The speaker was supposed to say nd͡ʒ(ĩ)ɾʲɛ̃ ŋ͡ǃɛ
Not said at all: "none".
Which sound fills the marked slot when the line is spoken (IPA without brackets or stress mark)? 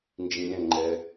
ĩ